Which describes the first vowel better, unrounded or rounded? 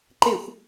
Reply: unrounded